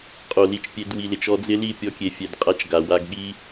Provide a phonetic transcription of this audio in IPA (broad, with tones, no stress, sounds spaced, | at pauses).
qʼ o˨ l i˨ t͡ʃ pʲ e˧ d w i˨ l ɪ˨ t͡ʃ ɔ˧ d͡z ɪ˦ l i˦˨ pʲ ɔ˧ kʲ e˨ fʲ ɛ˨ d qʼ a˧ t͡ʃ ɡ a˨ w a˧ ɡ ɠ i˦